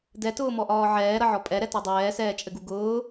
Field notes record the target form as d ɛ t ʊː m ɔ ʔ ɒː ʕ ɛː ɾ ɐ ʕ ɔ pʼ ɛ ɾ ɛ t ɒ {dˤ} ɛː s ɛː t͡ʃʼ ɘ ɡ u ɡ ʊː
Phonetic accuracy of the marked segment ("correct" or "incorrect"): correct